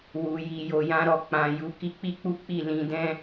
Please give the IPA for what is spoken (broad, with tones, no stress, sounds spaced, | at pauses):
w u˨ j i˨ j o˨ j ã˧ ɾ ɔ˨ k͡p ã˨ j u˨˦ k i˧ k͡p i˦ k͡p u˦ k͡p i˦˨ l ĩ˧ d ɛ̃˦